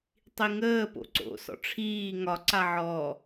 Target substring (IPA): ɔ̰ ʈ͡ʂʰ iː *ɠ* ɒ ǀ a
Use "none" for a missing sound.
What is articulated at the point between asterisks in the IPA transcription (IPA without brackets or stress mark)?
ŋ